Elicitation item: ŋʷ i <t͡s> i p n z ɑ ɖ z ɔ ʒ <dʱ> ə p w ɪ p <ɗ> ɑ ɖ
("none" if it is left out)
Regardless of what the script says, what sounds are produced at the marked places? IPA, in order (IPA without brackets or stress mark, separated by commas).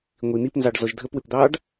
n̪, dʱ, d̪